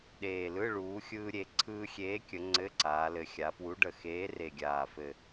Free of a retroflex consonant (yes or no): no